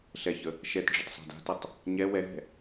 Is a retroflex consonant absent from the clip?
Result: no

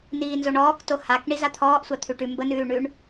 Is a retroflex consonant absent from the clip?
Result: no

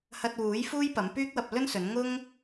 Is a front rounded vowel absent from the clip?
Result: no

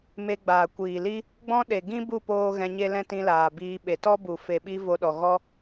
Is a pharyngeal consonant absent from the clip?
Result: yes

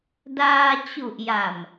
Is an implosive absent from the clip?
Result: yes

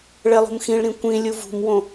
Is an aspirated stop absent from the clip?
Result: yes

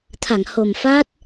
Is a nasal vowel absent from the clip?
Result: yes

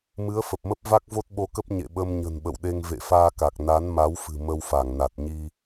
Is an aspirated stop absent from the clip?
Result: yes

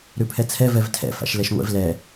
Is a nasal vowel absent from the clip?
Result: yes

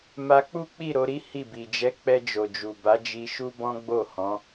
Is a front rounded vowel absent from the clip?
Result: yes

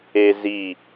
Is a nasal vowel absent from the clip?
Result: yes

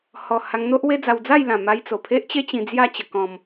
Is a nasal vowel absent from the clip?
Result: no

